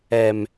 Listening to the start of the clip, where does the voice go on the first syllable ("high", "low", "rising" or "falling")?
high